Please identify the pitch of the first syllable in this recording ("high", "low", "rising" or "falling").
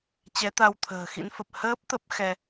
rising